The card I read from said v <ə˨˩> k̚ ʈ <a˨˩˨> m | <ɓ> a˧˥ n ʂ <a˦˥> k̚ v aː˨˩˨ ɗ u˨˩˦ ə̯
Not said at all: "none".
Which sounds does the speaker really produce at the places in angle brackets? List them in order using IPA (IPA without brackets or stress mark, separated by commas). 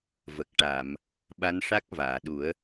ə˨˩, a˨˩˨, ɓ, a˦˥